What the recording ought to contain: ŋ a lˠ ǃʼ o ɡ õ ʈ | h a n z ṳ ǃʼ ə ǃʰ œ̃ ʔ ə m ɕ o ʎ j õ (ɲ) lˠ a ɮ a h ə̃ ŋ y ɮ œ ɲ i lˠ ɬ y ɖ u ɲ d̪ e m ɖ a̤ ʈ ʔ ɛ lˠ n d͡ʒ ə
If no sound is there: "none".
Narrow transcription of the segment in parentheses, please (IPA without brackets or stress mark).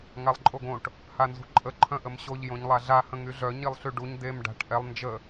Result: ɲ